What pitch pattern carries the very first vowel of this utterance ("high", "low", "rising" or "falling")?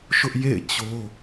high